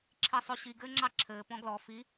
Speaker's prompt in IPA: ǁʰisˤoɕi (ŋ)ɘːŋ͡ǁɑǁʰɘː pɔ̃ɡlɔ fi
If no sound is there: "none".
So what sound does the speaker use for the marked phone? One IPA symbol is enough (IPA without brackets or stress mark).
ɡ